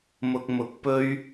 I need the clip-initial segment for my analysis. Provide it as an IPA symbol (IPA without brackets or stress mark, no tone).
m